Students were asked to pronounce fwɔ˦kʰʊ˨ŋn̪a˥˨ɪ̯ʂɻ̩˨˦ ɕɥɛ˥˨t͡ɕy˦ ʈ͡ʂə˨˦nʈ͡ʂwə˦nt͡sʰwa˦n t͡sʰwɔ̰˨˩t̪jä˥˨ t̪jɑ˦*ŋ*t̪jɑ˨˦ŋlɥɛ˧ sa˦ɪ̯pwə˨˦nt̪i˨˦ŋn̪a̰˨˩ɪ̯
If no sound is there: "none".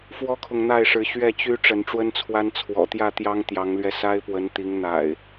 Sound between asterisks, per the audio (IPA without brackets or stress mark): ŋ